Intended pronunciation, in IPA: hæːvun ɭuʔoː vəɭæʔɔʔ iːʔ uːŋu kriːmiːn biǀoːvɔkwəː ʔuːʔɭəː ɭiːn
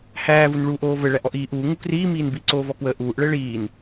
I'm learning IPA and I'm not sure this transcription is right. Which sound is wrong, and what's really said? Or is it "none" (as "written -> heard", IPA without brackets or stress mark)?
none